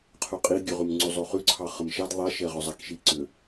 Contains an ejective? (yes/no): yes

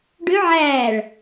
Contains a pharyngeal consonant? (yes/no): yes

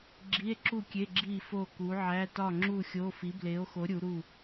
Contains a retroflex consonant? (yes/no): no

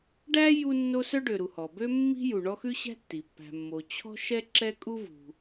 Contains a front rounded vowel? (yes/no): yes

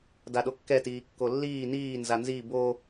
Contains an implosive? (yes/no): yes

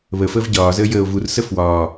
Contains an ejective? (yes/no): no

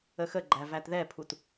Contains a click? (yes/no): yes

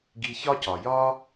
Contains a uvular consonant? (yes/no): no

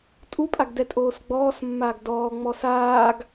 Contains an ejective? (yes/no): yes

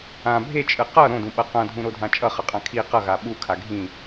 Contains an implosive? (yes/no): yes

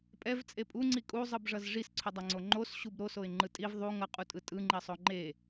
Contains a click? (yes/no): yes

